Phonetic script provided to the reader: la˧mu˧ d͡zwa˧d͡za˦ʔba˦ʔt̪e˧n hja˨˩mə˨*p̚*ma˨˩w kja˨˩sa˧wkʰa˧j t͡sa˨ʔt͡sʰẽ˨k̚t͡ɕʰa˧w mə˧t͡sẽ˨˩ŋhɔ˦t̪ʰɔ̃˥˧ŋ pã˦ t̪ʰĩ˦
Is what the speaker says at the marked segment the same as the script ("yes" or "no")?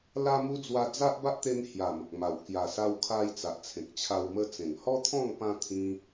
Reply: no